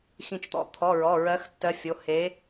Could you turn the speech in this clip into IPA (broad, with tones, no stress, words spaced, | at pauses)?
xĩ˧˩t͡ʃt̪ɔ̰˨˥ t̪ʰɔ˩˧˩ɹɔ˩˧˩ ɹɜ˨˥xtːɜ˨˥fʲo˩˧˩ he˨˥